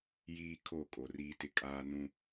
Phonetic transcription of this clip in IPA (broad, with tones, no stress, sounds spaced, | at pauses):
j iː˦ kʰ o˦˨ kʼ o˨ r iː˦ t ɪ˦ kʼ aː˦ n ũ˦